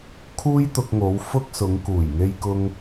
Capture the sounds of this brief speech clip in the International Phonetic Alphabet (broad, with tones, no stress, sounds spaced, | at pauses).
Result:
kʰ uː˥ j t̪ ʊ˧ k̚ ŋ o˨˧ w f ʊ˥ k̚ s ʊ˨˧ ŋ k uː˨˩ j ŋ e˧ j k ʊ˧ ŋ